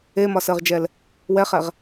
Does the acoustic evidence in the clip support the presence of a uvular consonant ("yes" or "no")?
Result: yes